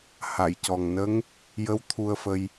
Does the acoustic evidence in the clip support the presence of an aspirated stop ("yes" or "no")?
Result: yes